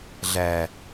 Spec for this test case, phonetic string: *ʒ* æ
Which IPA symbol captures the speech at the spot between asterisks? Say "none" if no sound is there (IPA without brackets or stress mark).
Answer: ɮ